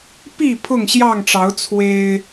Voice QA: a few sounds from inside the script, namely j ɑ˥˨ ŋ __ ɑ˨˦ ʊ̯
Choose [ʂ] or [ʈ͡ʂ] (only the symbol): ʈ͡ʂ